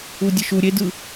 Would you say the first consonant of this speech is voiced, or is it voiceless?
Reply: voiced